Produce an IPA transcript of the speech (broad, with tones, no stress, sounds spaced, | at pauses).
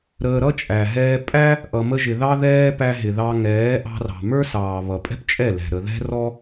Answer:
ɾ əː˧ ɾ ʌ˦ t͡ʃʼ æ˨ ɦ ɛː˧ pʼ æ˦ | ʔ ʌ˧ m ə˦ ʒ ɪ˧ ð ɑ˦ ð ɛː˦ p æ˧ ɦ ɪ˨ ð ɑ˧ ŋ ɛː˨˦ ʔ ɑ̤˧ r ɑ̤˨ m ə˞˦ s ɑː˨ β ʌ˨ pʼ ɛ̤˦ p t͡ʃʼ ɛ˦˨ l ɛ̤˨ ɾ ə˨ ð ɛ̤˦ r ɔ˦